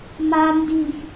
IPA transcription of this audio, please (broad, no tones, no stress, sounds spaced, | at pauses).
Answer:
m a n d i x